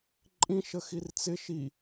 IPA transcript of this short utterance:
ǃʼĩʃ əxirt͡sɪ ʃi

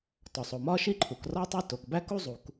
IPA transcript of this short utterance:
tɒ˩sˤo˩mɒ˥ ʃi˥ǃʰu˩k rɒ˥tˤæ˥ to˩kbæ˥ku˥ zˤu˩k

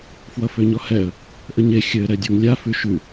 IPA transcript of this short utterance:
fwʌføɲɔhɛə̯ | ʔəɲe xʲɘ ɾɛdʲɔŋlʲa fʉʃʉ

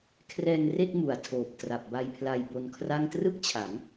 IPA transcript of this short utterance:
kʰrɛː˧ŋre˥˩k̚ mu˨˩a̯tʰoː˨˩p̚ tra˨˩p̚ba˧j pʰla˧jbo˧nkʰra˥˩ŋ trɯ˥˩k̚t͡ɕʰa˩˦ŋ

